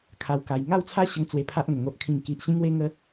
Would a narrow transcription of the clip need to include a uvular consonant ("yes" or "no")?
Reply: no